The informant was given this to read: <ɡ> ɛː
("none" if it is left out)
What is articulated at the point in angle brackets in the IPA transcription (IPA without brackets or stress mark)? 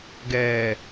ɡ